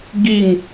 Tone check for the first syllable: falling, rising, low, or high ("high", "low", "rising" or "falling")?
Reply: falling